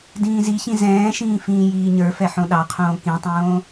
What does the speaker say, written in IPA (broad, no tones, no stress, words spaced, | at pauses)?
dĩːziçĩ zɛ̃ːʃĩː fĩːjiːɲə˞fɛ ħõɗɑqʰõː kĩtˤõː